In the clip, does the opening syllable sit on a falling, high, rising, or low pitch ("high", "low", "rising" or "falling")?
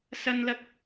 high